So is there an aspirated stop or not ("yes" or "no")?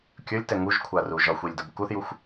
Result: yes